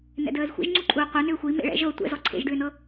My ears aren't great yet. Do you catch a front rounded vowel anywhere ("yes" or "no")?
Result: yes